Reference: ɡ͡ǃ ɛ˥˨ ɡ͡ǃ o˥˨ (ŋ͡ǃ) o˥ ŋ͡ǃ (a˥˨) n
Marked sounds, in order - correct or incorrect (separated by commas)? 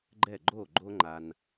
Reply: incorrect, incorrect